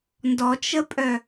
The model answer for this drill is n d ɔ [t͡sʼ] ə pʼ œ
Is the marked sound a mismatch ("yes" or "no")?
yes